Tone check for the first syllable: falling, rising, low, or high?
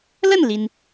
falling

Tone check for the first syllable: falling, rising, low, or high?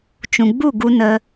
low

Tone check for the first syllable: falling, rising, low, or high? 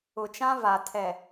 low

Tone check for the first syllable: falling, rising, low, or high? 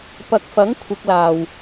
low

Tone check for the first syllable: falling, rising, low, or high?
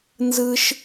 high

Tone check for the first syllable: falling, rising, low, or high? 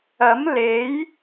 rising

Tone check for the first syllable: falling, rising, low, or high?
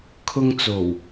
high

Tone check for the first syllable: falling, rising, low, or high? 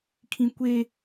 high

